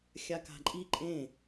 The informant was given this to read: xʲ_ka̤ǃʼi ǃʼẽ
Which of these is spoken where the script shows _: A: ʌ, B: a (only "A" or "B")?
B